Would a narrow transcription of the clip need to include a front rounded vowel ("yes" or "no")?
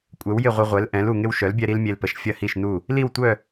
yes